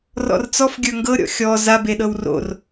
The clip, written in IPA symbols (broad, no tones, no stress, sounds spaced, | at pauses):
r ɔ̰ r t͡s ɔ f ɡʲ ə˞ ŋ ɡ ɤ ɾʲ ɔ̰ xʲ ɔ z a b e ɗ ɤ w r o̰ r